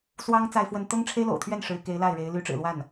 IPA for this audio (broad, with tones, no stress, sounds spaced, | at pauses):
s w ɑ˥ ŋ t͡s a˥˧ ɪ̯ f w ə˥˩ n t̪ ɤ˥ ŋ ʈ͡ʂʰ e˥ ɪ̯ l o̰˨˩ ʊ̯ t̪ʰ ɥ ɛ˥˩ n ʂ ɻ̩˧˥ k e˧˥ ɪ̯ l a˥˩ ɪ̯ ɻ e˧˥ ɪ̯ l y˧˥ ʈ͡ʂ ɻ̩˨˩ l w a˥˩ n